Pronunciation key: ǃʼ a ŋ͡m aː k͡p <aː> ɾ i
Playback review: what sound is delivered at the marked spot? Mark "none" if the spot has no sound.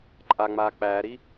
æː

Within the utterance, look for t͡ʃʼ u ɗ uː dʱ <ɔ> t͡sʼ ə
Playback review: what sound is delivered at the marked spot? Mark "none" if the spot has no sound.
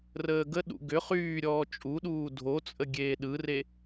o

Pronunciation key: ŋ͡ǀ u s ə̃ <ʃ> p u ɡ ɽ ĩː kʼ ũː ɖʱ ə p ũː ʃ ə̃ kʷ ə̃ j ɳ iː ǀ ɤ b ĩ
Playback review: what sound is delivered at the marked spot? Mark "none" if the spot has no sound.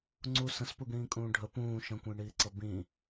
s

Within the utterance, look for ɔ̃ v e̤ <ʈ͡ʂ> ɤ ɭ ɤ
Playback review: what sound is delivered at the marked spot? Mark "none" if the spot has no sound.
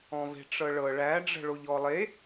ʈ͡ʂ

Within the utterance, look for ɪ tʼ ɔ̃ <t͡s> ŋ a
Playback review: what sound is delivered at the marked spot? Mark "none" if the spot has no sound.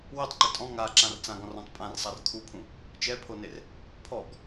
none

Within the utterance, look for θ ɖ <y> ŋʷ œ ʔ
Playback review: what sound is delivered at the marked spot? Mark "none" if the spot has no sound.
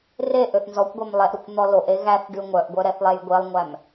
y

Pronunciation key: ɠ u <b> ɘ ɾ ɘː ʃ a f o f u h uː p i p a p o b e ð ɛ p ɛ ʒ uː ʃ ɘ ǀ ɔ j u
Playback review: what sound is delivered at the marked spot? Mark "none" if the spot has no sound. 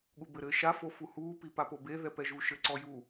b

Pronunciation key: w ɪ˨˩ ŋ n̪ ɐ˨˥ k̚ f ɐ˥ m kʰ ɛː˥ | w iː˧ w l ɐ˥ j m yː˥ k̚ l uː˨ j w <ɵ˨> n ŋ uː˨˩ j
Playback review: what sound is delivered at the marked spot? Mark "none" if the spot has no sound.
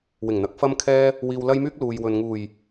ɵ˨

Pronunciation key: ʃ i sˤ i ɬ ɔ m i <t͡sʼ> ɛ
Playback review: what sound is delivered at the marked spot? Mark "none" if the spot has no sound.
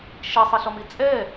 t͡sʼ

